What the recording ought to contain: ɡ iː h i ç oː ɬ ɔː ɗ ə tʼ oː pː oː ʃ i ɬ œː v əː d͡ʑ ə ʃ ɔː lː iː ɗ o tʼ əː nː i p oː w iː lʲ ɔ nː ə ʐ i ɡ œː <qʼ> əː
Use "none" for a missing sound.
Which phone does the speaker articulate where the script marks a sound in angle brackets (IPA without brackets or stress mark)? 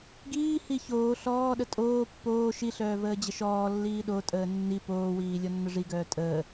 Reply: tʼ